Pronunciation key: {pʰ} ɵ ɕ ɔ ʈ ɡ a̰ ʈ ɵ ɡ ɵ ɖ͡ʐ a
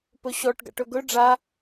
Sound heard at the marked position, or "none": p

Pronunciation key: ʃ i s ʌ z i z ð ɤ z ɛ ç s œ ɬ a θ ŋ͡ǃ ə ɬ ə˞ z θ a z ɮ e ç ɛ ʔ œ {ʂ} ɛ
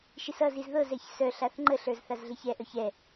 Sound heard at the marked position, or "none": ç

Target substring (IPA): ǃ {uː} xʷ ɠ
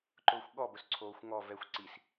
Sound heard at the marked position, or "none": ʊː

